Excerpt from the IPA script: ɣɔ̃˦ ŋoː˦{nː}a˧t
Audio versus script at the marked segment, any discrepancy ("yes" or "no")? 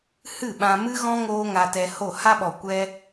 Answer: yes